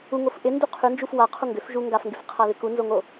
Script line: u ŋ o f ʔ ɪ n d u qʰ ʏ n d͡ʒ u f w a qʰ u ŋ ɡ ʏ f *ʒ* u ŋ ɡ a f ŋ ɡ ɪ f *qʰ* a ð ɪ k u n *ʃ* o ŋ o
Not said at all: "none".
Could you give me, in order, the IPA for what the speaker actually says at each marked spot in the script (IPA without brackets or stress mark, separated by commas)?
ʒ, qʰ, z